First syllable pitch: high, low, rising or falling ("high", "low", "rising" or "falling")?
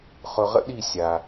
low